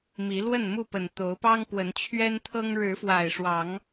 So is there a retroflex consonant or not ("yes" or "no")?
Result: yes